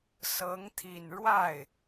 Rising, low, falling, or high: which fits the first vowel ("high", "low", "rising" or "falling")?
rising